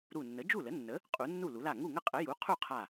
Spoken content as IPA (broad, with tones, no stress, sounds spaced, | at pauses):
ɾ u˧˩ nː ə˩˥ d͡ʒ u˥˩ l ə˩˥ nː ə˩˥ | qʼ u˩˥ nː u˥˩ l u˩˥ l a˥˩ ŋ u˥˩ ŋ ə˥˩ qʼ ə˩˥ j u˩˥ qʰ u˥˩ qʰ a˧˩